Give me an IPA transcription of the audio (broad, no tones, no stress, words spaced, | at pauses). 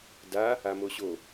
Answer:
da | amoɕo